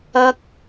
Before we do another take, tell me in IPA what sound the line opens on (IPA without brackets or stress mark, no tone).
ɐ